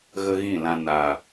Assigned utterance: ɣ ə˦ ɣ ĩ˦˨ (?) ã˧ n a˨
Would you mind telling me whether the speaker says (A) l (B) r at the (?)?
A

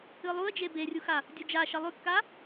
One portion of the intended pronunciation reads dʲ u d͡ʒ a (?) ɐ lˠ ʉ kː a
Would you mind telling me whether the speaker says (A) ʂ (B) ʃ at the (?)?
B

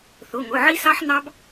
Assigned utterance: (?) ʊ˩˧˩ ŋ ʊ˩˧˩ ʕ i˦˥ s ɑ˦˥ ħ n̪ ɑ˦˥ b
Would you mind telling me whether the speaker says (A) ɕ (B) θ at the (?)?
B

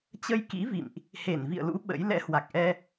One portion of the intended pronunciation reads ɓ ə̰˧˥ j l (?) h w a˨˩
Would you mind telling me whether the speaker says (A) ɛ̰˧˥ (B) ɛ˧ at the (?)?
A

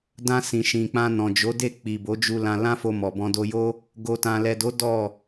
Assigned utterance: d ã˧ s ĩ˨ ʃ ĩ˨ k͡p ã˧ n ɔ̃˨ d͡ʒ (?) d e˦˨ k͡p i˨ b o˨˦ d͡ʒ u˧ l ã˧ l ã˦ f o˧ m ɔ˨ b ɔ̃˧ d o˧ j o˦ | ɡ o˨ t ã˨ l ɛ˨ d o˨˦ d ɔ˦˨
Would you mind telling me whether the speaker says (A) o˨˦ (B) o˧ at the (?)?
A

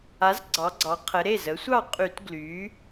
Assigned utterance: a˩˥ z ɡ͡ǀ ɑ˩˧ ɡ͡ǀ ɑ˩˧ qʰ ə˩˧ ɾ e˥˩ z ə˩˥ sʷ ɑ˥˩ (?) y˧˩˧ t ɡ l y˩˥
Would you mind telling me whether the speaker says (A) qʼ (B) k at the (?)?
A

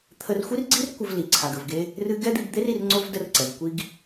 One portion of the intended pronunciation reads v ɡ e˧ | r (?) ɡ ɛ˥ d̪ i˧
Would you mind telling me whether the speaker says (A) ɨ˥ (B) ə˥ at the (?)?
A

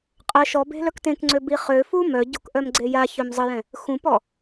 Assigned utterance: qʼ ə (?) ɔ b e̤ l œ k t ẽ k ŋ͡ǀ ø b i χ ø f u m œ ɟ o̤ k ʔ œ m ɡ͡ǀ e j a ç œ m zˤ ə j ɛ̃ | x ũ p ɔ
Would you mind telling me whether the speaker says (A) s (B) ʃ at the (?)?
B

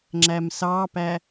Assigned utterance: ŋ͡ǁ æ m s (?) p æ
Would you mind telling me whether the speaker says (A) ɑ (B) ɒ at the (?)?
A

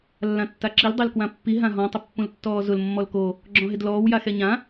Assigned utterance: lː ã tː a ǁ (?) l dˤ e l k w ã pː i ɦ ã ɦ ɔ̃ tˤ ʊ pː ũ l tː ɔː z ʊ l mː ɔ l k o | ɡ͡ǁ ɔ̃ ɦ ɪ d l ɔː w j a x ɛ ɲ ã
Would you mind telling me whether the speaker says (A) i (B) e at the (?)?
A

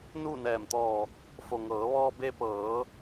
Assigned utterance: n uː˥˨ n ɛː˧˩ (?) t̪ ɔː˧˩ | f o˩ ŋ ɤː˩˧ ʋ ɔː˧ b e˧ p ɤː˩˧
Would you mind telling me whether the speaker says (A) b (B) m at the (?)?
B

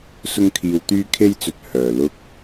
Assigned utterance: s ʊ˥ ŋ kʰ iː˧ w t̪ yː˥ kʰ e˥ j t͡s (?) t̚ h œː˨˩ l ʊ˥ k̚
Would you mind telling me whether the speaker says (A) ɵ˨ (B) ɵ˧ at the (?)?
A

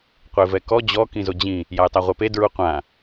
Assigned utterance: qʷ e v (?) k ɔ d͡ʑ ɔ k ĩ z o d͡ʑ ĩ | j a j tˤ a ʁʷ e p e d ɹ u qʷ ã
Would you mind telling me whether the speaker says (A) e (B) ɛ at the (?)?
B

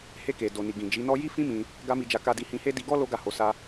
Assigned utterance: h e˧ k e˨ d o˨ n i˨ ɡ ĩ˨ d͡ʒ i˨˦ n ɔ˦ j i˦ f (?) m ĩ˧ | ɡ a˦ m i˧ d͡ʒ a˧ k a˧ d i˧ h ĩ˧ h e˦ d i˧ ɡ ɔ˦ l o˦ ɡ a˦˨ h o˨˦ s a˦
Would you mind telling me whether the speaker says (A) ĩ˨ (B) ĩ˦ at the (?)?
B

